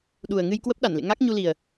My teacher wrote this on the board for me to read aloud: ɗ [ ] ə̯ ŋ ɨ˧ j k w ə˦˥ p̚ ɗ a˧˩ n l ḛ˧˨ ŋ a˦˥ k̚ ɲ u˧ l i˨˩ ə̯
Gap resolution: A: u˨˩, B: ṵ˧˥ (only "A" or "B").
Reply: A